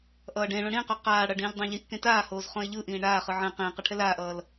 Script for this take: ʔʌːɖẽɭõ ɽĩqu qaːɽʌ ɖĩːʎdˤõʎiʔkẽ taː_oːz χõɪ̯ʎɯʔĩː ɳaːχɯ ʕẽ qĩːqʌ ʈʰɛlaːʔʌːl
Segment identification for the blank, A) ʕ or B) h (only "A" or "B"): B